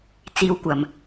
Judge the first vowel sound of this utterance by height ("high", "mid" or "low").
high